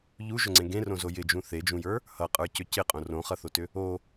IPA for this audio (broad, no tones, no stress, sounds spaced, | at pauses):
ʎ u ʒ ʏ ŋ͡ǀ ẽ ɡ ẽ r õ z o j ɪ d͡ʒ ũ θ e d͡ʒ ũ j ə˞ | h ʌ qʼ ə˞ c ʏ c ɪ qʼ õ r õ χ ʌ θ o t ʏ | o